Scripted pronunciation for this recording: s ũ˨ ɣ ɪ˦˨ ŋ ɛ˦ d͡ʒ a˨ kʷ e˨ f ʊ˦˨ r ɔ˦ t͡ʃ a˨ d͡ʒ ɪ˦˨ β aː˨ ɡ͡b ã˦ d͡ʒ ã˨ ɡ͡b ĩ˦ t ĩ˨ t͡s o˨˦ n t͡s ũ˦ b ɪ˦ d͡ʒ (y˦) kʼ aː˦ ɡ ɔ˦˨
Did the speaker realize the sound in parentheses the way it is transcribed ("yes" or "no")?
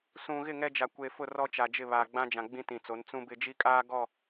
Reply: no